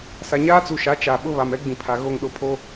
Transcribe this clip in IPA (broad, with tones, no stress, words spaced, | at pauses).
sa˨ɲaː˦t͡su˨ʃa˨˦ t͡ʃa˨ɓʊ˦ βa˨mɛ˦ɡ͡bĩ˨pʰa˨ ɣo˦˨ŋɗʊ˦˨pʰo˦